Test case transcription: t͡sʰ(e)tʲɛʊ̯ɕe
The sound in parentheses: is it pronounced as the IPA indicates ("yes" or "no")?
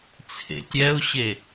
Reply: no